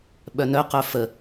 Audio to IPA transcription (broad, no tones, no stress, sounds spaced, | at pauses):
ɓ œ n œ q œ f ə